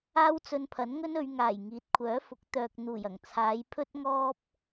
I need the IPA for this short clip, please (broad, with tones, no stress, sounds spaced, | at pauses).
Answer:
aː˥ w t͡s ɵ˧ n pʰ ɐ˨˥ n ŋ ɵ˥ n ɵ˨˧ ɥ ŋ aː˨˩ j ŋ iː˨˥ t̚ kʷʰ œː˨˥ f ʊ˨˥ k̚ t̪ œː˨ k̚ n̪ uː˨˩ j ɐ˨˩ ŋ t͡sʰ aː˨˧ j pʰ ɵ˥ t̚ ŋ ɔː˥ p̚